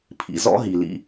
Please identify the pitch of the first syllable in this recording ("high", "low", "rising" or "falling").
low